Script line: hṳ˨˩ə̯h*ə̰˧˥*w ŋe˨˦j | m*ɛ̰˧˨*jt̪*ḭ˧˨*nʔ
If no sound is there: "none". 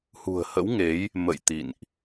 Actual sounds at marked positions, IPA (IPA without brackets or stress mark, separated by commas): ə̰˧˥, ə̰˧˨, ḭ˧˨